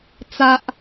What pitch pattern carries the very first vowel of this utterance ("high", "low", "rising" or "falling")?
high